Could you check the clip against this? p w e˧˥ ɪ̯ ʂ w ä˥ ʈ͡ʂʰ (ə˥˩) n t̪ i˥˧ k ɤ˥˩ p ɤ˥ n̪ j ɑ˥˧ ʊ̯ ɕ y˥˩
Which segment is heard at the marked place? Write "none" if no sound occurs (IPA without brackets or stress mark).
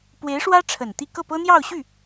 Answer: ə˨˩